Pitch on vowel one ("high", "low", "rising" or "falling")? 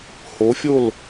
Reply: rising